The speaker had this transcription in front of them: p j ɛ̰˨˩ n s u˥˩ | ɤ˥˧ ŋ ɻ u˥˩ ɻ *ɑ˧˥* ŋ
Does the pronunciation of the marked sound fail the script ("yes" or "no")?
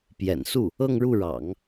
yes